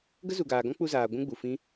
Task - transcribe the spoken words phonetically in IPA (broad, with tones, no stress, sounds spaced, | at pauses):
ɡ ə˦ z u˨ ɡ aː˨ ɡ ɔ̃˦ k͡p u˧ z aː˨ ɡʷ ũ˦ ɡ͡b u˨ f ĩ˦